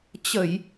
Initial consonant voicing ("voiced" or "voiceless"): voiceless